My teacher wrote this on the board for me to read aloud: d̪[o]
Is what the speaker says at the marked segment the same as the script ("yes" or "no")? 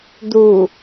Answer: no